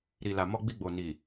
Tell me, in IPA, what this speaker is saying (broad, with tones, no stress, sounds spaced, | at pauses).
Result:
ɾ i˨ l a˨ m ɔ˧ ɡ͡b i˧ ɡ͡b o˨ n i˨